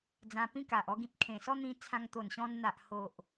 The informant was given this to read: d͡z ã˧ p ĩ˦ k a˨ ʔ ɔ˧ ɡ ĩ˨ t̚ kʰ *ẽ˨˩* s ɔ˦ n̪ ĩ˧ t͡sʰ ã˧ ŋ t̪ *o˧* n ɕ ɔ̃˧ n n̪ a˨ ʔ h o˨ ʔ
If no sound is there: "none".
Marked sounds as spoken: ẽ˨˩, o˨˩

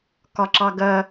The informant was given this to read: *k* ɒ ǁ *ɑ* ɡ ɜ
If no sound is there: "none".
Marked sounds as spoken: k, ɑ

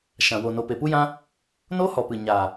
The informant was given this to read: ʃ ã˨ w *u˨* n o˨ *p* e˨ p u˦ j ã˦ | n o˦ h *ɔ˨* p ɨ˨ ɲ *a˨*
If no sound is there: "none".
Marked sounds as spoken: o˨, p, ɔ˨, a˨

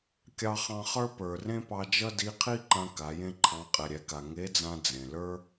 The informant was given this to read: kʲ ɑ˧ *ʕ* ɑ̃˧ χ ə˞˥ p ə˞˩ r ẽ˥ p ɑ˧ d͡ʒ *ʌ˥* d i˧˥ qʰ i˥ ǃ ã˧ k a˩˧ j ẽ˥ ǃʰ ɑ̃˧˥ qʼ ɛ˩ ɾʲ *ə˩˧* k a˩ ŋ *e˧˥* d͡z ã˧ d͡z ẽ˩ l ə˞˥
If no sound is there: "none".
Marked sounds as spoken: χ, ʌ˥, ɛ˩˧, e˧˥

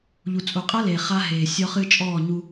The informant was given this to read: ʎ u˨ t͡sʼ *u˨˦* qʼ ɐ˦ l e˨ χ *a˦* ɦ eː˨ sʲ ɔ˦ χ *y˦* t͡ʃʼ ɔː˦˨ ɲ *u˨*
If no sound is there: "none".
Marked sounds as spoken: u˨, a˦, ɨ˦, u˦

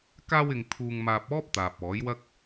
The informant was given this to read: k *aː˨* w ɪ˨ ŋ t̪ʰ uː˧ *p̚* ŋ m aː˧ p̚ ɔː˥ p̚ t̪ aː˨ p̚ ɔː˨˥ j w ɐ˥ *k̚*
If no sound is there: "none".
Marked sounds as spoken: aː˧, none, k̚

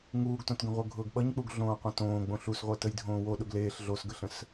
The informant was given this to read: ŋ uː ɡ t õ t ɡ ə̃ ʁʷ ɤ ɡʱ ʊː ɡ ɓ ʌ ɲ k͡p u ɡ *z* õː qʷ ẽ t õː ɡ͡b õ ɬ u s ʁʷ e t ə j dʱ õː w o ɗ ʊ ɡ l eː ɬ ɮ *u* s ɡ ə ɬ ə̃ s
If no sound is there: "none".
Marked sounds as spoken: ɮ, o

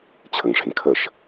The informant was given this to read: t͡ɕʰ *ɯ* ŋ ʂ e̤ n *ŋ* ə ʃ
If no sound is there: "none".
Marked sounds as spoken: ə, kʰ

